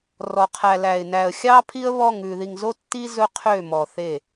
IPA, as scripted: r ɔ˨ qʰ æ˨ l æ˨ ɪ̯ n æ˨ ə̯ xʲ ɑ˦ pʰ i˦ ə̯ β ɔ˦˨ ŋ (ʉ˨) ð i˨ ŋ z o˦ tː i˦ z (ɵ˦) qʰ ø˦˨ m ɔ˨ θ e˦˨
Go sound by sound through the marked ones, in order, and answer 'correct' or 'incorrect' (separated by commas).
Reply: correct, correct